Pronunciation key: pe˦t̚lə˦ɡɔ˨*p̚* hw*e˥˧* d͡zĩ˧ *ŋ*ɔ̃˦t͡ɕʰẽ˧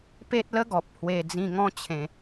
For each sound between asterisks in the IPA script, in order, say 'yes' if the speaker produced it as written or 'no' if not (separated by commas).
yes, no, yes